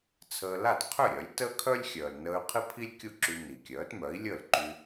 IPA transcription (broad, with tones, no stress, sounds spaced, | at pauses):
t͡sʰ əː˧ l a˥˩ t qʰ ø˥˩ ɾʲ œ˩˥ lʲ t əː˥ kʰ œ˥ lʲ xʲ œː˩ l n əː˧ y̯ qʰ i˥ pʰ i˥ lʲ kʲ u˥˩ ǁ y˧ n i˩ kʲ œː˩˥ t m œ˩˥ i̯ lʲ əː˥˩ l ǃ y˧